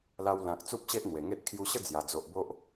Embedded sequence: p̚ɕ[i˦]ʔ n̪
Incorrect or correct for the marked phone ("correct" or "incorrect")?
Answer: incorrect